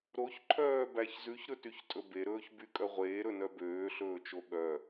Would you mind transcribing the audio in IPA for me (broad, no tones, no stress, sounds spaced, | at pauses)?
ɾ o ç ǃʰ œː b æ ç z ʉ ç ɾ ɵ t y ç tʼ ɵ b e ɾ ɵː ç b y kʼ œ ʁʷ eː ɾ ɵ n œ b øː ɬ ɵː t͡ʃ o ɠ œ